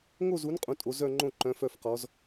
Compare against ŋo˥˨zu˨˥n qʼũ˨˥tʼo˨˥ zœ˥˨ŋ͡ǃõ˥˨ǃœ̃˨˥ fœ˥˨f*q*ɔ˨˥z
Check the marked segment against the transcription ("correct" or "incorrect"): correct